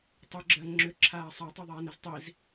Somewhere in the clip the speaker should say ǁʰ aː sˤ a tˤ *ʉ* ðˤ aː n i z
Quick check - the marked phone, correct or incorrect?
correct